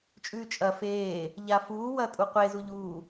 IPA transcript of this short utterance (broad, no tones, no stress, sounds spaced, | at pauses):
t͡ʃʼ ʉː t͡ʃʼ ɐ f eː | ʎ a f uː w ɐː tʼ u qʷ e z u ʎ uː